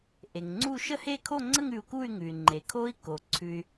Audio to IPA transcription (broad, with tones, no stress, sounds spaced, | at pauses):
ʔ e˩ ŋ ŋ͡ǀ u˥˧ ʃ ə˥˧ h e˥˧ kʰ o˥˧ ŋ͡ǀ ə˥˧ ŋ ʉ˧ u̯ k u˥˧ y̯ ŋ ʉ˩ y̯ ŋ͡ǃ e˩ kʰ o˧ i̯ k o˩ ǀʰ ʉ˧ y̯